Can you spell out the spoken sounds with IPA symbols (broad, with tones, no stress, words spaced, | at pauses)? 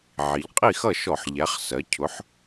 ʕi˩˧ʎqʼi˥˩xʌ˥˩ʃɔ˧˩˧ħ ʎæ˩˥χ sɜ˩˥ cʰʊ˩˥ħ